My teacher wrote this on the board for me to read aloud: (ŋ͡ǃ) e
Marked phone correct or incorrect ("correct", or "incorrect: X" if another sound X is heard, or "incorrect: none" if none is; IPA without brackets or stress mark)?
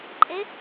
incorrect: ǃʼ